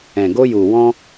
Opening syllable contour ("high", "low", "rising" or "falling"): low